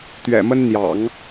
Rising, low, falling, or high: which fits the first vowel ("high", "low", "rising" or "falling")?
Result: low